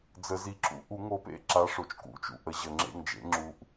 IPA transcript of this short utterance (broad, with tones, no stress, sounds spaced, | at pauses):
d͡z ə˨˩˦ z i˨˦ ǁ ṵ˨˦ ʔ u˨˩˦ ŋ o˨˦ p ḛ˦˨ ǁ a˨˦ ʂ o˩ t͡ʃ k ṵ˨˩˦ t͡ʃ ṵ˩ ʔ ə˨˩˦ ʑ ə˩ ŋ͡ǁ ḛ˦˨ ŋ d͡ʒ ḛ˨˦ ŋ͡ǁ u˨˦ ʔ